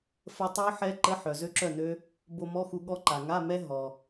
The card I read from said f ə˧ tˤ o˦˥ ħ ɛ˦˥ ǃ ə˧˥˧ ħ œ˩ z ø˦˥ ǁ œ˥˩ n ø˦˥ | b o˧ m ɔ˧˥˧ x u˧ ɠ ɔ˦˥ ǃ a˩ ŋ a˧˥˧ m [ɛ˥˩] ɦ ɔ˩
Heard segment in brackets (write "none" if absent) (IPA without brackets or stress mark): ɛ˦˥